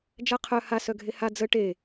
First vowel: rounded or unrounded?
unrounded